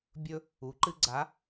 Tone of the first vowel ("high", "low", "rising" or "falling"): high